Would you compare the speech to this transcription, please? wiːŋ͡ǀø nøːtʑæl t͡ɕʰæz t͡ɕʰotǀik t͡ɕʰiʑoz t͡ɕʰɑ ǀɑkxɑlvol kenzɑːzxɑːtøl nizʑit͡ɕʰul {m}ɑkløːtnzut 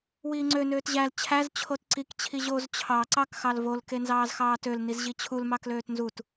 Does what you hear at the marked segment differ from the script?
no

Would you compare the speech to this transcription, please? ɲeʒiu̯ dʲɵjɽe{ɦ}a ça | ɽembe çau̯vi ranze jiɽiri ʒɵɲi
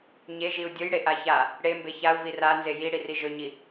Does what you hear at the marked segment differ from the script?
yes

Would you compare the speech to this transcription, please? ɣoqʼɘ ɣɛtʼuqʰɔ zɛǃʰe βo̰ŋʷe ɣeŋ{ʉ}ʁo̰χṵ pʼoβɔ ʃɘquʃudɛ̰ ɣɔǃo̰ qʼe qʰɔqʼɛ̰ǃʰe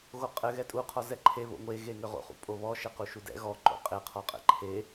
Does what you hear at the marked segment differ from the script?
yes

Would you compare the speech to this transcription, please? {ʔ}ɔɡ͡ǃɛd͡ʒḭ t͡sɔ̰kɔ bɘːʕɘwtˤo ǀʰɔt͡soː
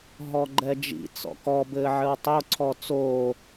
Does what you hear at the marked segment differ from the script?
yes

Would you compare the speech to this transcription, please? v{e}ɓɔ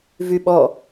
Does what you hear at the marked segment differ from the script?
yes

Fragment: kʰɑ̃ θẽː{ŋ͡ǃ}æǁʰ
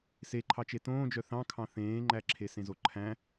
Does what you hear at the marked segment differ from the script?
no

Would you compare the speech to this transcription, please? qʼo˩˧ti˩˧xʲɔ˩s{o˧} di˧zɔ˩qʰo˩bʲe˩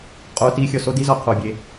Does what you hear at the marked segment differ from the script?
no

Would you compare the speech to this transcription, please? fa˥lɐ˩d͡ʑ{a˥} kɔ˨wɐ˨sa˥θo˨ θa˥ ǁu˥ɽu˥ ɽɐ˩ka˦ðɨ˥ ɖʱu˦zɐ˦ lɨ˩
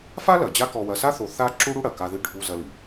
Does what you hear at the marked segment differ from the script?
yes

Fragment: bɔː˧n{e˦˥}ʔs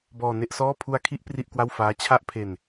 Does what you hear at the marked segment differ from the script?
yes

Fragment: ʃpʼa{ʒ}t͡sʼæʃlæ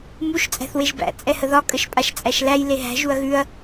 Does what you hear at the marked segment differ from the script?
yes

